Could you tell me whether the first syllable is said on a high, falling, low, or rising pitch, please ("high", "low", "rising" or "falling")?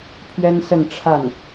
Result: high